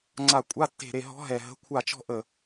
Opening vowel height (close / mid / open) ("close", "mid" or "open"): open